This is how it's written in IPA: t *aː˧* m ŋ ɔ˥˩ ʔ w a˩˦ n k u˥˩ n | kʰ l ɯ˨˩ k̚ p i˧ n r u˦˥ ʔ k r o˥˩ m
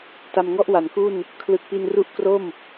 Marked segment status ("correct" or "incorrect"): incorrect